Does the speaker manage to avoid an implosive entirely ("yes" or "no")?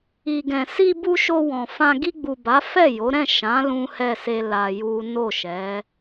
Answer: yes